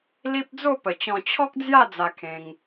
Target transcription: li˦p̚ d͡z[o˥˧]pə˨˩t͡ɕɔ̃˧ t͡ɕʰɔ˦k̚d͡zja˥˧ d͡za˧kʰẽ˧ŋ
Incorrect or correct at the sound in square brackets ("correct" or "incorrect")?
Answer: correct